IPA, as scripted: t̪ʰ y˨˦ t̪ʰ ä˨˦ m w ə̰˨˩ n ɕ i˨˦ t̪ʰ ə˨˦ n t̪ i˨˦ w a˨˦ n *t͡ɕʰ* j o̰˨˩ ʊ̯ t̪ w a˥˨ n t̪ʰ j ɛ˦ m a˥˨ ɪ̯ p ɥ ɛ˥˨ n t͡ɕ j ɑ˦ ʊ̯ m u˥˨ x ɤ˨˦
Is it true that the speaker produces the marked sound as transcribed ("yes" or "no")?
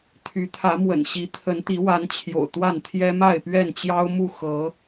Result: yes